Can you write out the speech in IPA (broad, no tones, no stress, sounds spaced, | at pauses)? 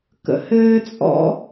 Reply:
k ə̰ h ɘː t͡sʼ ɔ̰